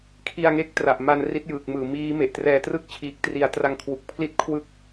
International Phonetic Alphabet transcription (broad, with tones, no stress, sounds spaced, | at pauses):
kʰ i˧ a̯ ŋ e˦˥ k̚ t r a˨˩ ʔ m a˧ n r i˦˥ t̚ j ɯː˨˩ k̚ m ɯː˨˩ m iː˦˥ m e˨˩ ʔ t r ɛː˧ t r ɯ˥˩ k̚ t͡ɕʰ iː˨˩ k̚ t r i˩˦ a̯ t r a˧ ŋ kʰ w u˨˩ k̚ pʰ l i˥˩ t̚ kʰ w ɯ˥˩ k̚